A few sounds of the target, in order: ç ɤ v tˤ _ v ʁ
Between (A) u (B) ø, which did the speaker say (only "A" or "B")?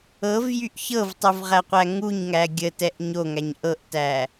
A